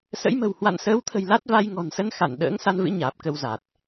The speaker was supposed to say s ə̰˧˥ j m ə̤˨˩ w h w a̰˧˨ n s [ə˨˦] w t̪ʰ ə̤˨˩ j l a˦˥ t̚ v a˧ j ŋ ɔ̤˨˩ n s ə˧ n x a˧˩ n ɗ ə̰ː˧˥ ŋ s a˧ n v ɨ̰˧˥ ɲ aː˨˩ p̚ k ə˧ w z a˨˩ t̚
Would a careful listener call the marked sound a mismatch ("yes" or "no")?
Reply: yes